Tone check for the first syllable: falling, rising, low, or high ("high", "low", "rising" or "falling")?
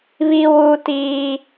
high